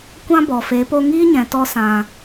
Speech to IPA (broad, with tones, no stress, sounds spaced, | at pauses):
kʷ ã˦ b ɔ˨ f e˨˦ p o˧ ŋ iː˦ ɲ ɛ̃˨ t ɔ˧ s ã˨